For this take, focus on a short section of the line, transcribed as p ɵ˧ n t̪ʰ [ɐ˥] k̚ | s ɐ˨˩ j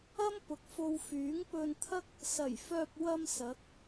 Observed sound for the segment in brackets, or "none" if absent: ɐ˥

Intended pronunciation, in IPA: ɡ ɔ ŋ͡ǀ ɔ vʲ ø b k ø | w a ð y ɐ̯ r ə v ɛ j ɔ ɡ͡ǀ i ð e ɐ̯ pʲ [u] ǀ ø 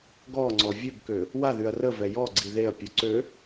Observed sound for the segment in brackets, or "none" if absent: u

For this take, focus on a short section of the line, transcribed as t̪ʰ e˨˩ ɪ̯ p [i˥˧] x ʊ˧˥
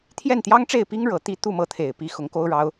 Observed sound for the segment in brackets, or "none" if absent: i˧˥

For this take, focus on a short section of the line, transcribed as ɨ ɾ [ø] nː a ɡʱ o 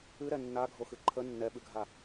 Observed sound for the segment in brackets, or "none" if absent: ɛ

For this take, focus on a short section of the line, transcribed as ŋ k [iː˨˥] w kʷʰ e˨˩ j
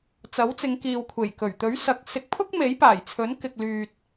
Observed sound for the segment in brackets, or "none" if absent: iː˨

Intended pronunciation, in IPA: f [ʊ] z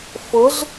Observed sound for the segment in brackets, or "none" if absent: ʊ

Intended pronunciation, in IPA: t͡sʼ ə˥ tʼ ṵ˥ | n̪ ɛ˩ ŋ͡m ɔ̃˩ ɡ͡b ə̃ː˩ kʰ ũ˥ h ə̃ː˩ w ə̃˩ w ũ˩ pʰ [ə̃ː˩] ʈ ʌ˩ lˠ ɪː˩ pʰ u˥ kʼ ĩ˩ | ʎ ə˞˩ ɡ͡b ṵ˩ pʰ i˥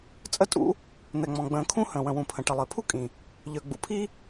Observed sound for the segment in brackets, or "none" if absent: ə̃˩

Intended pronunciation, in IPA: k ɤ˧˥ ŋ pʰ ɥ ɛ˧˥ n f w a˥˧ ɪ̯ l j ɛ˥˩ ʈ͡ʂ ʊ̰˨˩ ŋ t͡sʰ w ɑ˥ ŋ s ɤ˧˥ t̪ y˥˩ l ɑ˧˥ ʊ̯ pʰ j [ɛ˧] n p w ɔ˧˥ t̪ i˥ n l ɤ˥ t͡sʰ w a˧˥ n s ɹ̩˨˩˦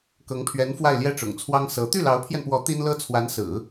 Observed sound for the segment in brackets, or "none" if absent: ɛ˧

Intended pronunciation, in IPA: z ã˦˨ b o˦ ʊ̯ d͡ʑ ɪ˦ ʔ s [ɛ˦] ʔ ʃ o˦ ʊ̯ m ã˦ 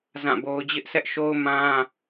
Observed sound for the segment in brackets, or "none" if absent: ɛ˦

